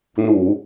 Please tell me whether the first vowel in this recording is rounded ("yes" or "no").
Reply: yes